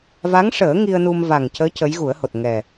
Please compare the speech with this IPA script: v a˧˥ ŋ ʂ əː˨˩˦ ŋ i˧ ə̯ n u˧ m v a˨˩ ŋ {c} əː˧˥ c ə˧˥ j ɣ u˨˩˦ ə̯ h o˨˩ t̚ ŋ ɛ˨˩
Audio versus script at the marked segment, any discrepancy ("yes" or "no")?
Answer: no